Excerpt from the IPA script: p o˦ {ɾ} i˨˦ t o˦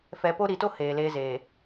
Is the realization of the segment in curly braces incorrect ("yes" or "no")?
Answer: no